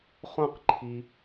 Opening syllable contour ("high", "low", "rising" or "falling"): high